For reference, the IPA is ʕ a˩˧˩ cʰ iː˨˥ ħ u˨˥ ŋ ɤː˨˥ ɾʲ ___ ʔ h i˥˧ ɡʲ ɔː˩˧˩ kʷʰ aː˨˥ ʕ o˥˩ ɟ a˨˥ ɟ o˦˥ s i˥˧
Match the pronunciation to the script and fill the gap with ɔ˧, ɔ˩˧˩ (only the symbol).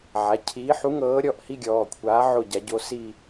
ɔ˩˧˩